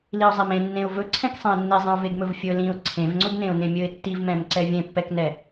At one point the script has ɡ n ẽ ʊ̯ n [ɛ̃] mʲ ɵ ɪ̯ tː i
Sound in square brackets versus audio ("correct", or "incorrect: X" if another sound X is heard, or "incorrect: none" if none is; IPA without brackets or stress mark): incorrect: ẽ